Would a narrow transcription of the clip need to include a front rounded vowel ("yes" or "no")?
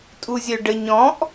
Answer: yes